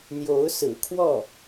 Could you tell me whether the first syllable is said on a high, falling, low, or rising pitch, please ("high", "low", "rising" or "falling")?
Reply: rising